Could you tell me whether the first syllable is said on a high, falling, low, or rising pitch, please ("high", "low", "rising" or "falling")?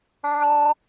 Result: high